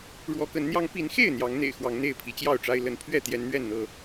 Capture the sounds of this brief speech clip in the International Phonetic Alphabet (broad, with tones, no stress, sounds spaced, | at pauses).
ɻ w ɔ˨˦ k ə˨˦ n n̪ j ɑ˦ ŋ p i˨˦ n x e˥˨ ɪ̯ n̪ j ɑ˨˦ ŋ n̪ ḛ˨˩ ɪ̯ x w ɑ˨˦ ŋ n̪ e˥˨ ɪ̯ pʰ i˨˦ t͡ɕ j ɑ˥˨ ʊ̯ ʈ͡ʂ a˦ ɪ̯ l ə˨˦ n pʰ ɥ ɛ˥˨ t̪ j ɛ˨˦ n n̪ ɥ ɛ˥˨ n n̪ ɤ˥˨